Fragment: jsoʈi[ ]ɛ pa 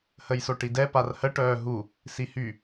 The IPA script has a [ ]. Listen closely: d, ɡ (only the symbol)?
d